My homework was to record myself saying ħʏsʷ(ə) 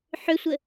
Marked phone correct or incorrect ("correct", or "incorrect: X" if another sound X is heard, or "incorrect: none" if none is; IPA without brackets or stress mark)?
correct